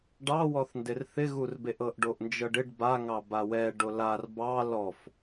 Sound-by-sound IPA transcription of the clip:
ɖ ɑ w ɔ θ n d ɪ r θ ɪ ɣ u r b e ʔ ɤ ʔ ɖ o ʔ n d͡ʒ ɤ ɖ ɪ ɖ b a ŋ ɑ b a w ɛ ɖ o l a r b ɑ l ɔ f

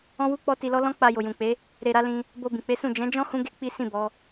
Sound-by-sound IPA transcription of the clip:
ɔ̃˦ w u˦ k͡p ɔ˦ t i˧ l ɔ˦ l ɔ̃˦ k͡p a˧ j o˨ j ũ˨ k͡p e˨˦ | ɾ e˨ ɾ a˨˦ l ĩ˧ | b o˧ b ĩ˨ k͡p e˨˦ s ũ˦˨ d͡ʒ ɛ̃˨˦ d͡ʒ ɔ̃˦ h ũ˦ ɡ e˦ k͡p i˦ s ĩ˦˨ b ɔ˨˦

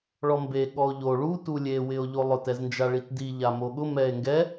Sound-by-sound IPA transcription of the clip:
ɭ ɔ m b e ɠ ɔ o̯ ʎ o ɭ u t u lʲ e w ɪ o̯ ʎ o lˠ ʊ t ɛ z n d͡ʒ a ɭ i t d i ʎ a m o ɠ ʊ m ɛ e̯ ŋ ɡ ɛ

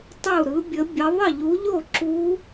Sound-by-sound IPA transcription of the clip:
tˤ u˥˨ ɾ ɯ˧˥ bʲ ə˧˥ bʲ ə˧˥ ðˤ ə˥˨ ʎ u˧˥ ʎ o˥˨ ǁ u˧˥

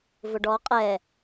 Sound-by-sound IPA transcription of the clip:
v ʊ ɖ ɔ qʼ ɛ

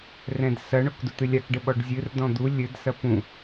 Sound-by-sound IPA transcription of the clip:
r ɛ̃ d s ɐ ɳ o k d u t̪ ɨ lʲ a k ɖ ɘ ɓ ɔ ɖ zʲ ɨ r d ɔ̃ d̪ u lʲ ɘ d s ɐ p ũ

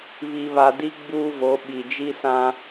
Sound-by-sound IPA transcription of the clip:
β i˨ β a˨ d i˦ ɡ͡b uː˦ v o˨˦ ɓ i˨ d͡ʒ i˦ s ã˦

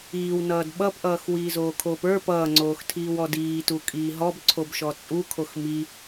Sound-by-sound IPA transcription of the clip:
iː w n ʌː d ɓ ʌ p ʔ ʌː x w iː z oː kʰ oː p ə˞ p ʌː ŋ͡ǀ oː x tʰ iː w ɔ d iː t u kʼ iː ɦ ɔ b ǀʰ o b ʃ ɔ t͡sʼ u kʰ o x m i

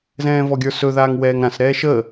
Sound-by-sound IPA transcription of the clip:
z ɛ̃ː v ɔ ɡʲ ə˞ s ɵ ð aː ŋ w ɛː ŋ ɾ ã s ɾ ɛː ʃ ə

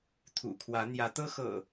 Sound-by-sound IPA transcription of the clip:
t̪ʰ ṵ˨˩ kʰ w ä˨˦ n̪ j ä˨˦ t̪ ɤ˦ x ɤ̰˨˩

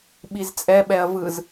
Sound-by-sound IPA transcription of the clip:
ɓ i z t͡sʼ ɛ ɓ ɛ ɐ̯ v ɯ z

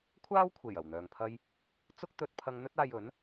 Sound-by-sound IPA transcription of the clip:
kʷʰ aː˥ w kʷʰ e˨˩ j ɐ˨˩ w n̪ œː˨ ŋ pʰ ɐ˥ j | t͡s ʊ˥ k̚ t̪ ɵ˥ t̚ pʰ ɐ˥ ŋ n̪ ɵ˥ t̚ aː˧ j ɵ˨˥ n

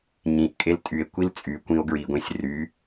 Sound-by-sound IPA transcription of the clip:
ɲ ĩ ʔ kʼ e l tʼ y e̯ kʷ i l t͡sʼ y kʷ ĩ o̯ ɡ ɹ i ɡʷ ẽ sʲ r y

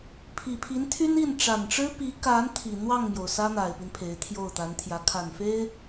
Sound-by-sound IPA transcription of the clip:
pʰ i˨˩ pʰ i˧˥ n t̪ʰ y˥ n i˥˩ n ʈ͡ʂ a˨˩ n ʈ͡ʂ ɻ̩˥ p i˧˥ k a˧˥ n t̪ʰ i˨˩ n̪ w ɑ˥˩ ŋ m j o˩ ʊ̯ s ä˥ n̪ a˨˩ ɪ̯ p i˦ n pʰ e˧˥ ɪ̯ t̪ʰ j o˥˩ ʊ̯ t̪ a˧˥ n t̪ʰ j ä˧˥ kʰ a˨˩ n f e˥ ɪ̯

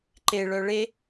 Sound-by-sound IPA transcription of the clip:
ǃ e ɭ œ ɭ e

